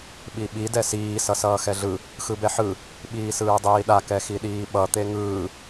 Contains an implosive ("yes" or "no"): yes